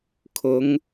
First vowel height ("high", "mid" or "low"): high